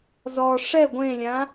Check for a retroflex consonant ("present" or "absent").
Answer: present